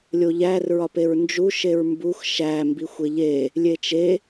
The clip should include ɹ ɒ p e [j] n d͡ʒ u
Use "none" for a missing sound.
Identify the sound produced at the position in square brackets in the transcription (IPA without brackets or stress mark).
ɹ